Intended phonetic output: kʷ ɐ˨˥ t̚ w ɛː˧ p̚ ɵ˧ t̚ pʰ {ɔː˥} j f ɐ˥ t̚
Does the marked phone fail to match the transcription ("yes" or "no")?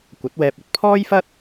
no